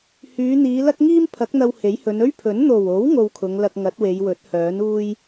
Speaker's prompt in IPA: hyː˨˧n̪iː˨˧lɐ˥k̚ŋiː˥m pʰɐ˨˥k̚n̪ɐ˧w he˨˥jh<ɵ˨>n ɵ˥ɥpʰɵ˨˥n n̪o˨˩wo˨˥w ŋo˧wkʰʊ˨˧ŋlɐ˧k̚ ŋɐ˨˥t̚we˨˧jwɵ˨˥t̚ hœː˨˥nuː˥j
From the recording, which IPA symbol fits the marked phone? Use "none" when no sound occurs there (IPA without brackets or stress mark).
ɵ˨˧